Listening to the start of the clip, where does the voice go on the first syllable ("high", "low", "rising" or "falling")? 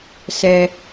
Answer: low